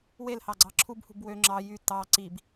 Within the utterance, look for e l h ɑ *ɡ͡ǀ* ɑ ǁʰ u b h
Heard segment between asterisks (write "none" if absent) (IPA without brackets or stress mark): ɡ͡ǀ